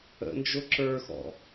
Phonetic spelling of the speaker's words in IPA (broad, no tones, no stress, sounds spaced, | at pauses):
ə̰ n d͡ʒ ʊ ǁ ə˞ x ɔ̰